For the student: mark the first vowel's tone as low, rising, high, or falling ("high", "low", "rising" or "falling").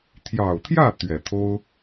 low